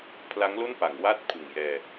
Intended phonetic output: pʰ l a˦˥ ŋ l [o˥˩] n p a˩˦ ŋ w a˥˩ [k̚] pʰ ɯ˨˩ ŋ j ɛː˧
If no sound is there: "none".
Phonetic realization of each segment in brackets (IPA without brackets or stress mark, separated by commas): o˥˩, t̚